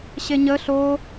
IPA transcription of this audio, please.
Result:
ɕ e ɲ ə ɬ o

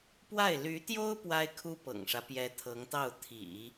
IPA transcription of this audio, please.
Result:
p w a˥˩ ɪ̯ l y˧˥ t̪ j o˥ ʊ̯ p w a˥ ɪ̯ kʰ u˥ p ɤ̰˨˩ ŋ ʂ ä˦ p j ɛ˧˥ t̪ʰ ɤ˧˥ ŋ t̪ ɑ˥˩ ʊ̯ t̪ʰ ḭ˨˩˦

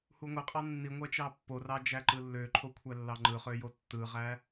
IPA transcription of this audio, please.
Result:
h u ŋʷ e qʼ ɑ nː i ŋʷ æ t͡ʃ ɑ pː o r ɑ d͡ʒ æ ǃ ɯ lː ø ǃʰ o kʷʰ æ lː ɑ ŋ͡ǃ ɯ χ ø j o tː ɯ ʁ æ

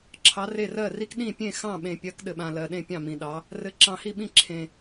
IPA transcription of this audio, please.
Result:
ǁʰ ɑ˨˦ r e˦˨ r ɜ˦˨ r i˦ k ɗ ĩ˦˨ pʲ ẽ˦˨ x ɑ̃˦˨ ɓ ẽ˨ pʲ ɜ˨˦ k ɗ ɘ˨ ɓ ã˨ l ɜ˨ ɗ ẽ˦˨ pʲ ɑ̃˦˨ m ĩ˨ ɗ ɑ˨˦ | r ɘ˨ ǁ ɑ̃˨ h i˦˨ ɓ ĩ˦˨ ǁʰ ẽ˨

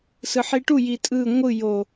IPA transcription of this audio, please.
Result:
s ɯ ħ i ʈ u j i tʼ ɯ ŋʷ ɯ j o

